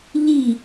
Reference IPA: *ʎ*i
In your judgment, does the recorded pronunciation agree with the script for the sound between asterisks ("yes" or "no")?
yes